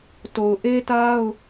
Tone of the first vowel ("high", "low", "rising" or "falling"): low